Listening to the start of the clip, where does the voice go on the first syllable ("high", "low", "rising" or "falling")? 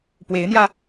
rising